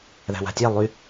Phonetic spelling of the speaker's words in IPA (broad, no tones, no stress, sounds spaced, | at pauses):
ð æ̤ w a̤ tʲ æ lˠ y